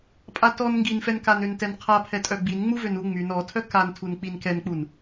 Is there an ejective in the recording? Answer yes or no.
yes